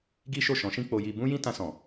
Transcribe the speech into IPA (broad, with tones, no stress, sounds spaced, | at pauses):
ɡ i˦ ʃ o˦˨ ʃ ɔ̃˨˦ ʃ ĩ˦ k͡p o˦ j i˦ b ũ˦ j ĩ˦ t ã˧ s ɔ̃˨